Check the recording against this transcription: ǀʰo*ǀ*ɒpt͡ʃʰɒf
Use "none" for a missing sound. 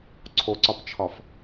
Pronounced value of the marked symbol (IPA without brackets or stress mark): ǀ